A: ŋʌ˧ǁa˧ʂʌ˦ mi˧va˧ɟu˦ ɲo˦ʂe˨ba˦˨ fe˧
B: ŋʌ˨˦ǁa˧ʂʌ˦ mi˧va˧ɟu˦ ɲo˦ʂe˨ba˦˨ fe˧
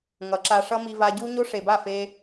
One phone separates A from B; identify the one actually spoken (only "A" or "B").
B